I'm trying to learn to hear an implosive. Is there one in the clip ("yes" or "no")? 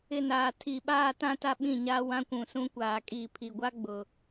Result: yes